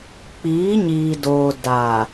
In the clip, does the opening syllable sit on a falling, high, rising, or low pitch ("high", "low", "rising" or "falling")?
rising